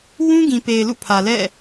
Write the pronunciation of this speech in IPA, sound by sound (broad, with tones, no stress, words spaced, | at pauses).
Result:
wũ˦ɡĩ˨pe˨ɪ̯ lṵ˦˨pʰä˨ lɛ̰˦˨